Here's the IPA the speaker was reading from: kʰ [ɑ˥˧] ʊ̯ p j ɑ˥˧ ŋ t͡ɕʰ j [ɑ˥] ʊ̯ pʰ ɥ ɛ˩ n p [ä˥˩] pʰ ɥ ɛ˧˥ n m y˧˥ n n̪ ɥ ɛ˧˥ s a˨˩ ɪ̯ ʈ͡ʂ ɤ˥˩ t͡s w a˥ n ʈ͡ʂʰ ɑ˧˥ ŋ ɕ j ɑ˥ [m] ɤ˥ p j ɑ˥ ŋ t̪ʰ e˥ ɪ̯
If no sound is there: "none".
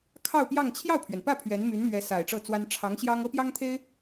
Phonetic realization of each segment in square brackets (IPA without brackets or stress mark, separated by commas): ɑ˥˧, ɑ˥˩, ä˥˩, ŋ